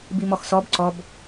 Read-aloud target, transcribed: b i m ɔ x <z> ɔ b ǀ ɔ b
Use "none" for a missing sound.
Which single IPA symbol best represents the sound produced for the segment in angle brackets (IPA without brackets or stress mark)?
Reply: s